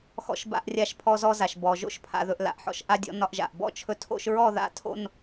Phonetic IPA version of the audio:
x ɔ̰˧ ʃ b a̰˧ ʔ rʲ a˧ ʃ pʰ ɔ˧ z ɔ˧ z a˩ ʃ b ɔ˩ ʒ o̰˥˧ ʃ pʰ a̰˩ ð ɵ˩ ʔ l a̰˩ ʔ ħ ɔ̰˧ ʃ ʔ a˧ dʲ ɔ̰˧ n ɒ˧ ʔ ʒ a̰˩ ʔ b ɔ̰˥˧ t͡ʃʰ ɵ˧ tʰ o̰˥˧ ʃ ɹ ɔ˥˧ ð a̰˥˧ tʰ o̰˥˧ n

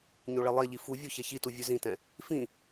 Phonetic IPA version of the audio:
ɲ o ɭ e lˠ e ʎ i f u vʲ o ç ɛ ç i t u vʲ ʉ z ĩ t ɛ̃ | f ĩ

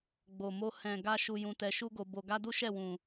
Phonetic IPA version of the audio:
ɡ͡b o˨ m o˧ h ɛ̃˨ ɡ a˧ ʃ u˨ j ũ˧ t ɛ˧ ʃ u˦ ɡ o˧ b o˧ ɡ a˦ d u˦ ʃ ɛ˦˨ w ũ˨

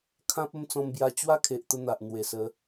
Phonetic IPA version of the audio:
kʰ ã˦ p̚ ə˥˧ m t͡s ɔ̃˧ m b j a˧ t͡ɕ w a˦ kʰ e˨ ʔ t̪ ə˧ n̪ a˨ ʔ n̪ w e˨˩ s ə˨˦

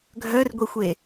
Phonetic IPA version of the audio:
ɡʱ œ r ɡʷ i xʷ e

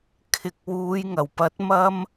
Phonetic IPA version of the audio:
kʰ ɪ˨ k̚ w uː˨˧ j ŋ ɐ˨˩ w p ɐ˨˥ t̚ m ɐ˥ m

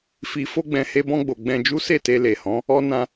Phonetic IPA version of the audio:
f i˨ f o˧ ɡ͡b ɛ̃˨ h e˧ b ɔ̃˧ ɡ͡b o˨ ɡ͡b ɛ̃˧ d͡ʒ u˦ s e˦˨ t e˧ l e˨ h ɔ̃˨˦ | ɔ˦ n ã˦

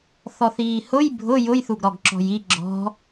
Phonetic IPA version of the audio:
θ ɔ θ iː h ʊ j bʱ ʊ j ʊ j θ u ɡ ɾ ɔ ɡ ǁ ɔ̤ j i ɡ͡ǁ ɔ̤

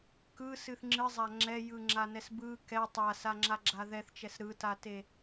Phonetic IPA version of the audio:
k ɯ s ɨ θ ŋ͡ǁ ɨ zˤ a ŋ͡ǁ ɛ j ɯ ŋ͡ǁ a n ɛ s b ɯ k ɛ tˤ a s a ŋ͡ǁ a ɡ͡ǁ a ð ɛ θ t͡ʃ ɛ s ɾ ɯ t a t e

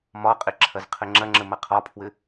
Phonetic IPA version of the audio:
m ɒ qʼ ɪ ǁʰ ɐ z qʰ ɘ ŋ͡ǁ ɐ ŋ͡ǁ ə m ɐ qʰ ɒ pʰ w ɘ

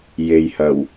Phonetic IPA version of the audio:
j e˨ j h ɐ˨˩ w

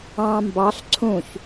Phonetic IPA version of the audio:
ɑ̃ m b ɑ ɬ ǀʰ ũ ç

